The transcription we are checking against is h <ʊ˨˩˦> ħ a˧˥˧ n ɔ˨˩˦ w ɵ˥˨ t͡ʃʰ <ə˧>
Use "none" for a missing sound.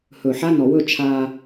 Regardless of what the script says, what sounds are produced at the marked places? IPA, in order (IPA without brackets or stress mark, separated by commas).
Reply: ɵ˨˩˦, a˧